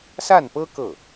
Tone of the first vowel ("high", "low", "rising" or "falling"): falling